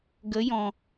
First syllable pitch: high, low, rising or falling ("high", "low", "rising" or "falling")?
rising